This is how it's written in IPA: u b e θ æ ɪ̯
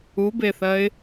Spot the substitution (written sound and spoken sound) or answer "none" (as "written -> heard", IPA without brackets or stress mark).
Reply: æ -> ɜ